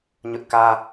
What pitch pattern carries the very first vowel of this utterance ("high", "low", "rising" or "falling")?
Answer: high